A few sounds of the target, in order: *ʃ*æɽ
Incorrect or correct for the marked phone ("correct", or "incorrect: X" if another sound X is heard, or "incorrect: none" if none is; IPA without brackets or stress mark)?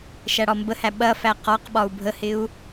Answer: correct